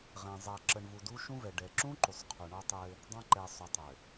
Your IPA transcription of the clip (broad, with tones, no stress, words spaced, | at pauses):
ʁɛ̃˨ zˤa˨ ǁə˨ɳ vu˨du˦ʃũ˦vɛ˨ ɖɛ˨ ǁũ˦ ǃu˨sˤqʰu˨ɳɔ˦tˤɘ˦ | dˤã˦ǃɛ˨ sˤu˨tˤɘ˨